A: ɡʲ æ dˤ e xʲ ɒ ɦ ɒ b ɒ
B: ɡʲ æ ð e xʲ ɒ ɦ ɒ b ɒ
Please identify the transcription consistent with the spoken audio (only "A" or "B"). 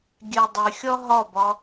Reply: A